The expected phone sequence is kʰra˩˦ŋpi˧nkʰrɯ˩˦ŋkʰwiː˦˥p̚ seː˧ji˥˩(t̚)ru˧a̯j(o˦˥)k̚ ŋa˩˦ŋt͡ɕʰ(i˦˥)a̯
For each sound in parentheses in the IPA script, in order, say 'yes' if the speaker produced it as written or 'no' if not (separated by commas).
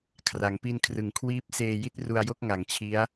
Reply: yes, no, yes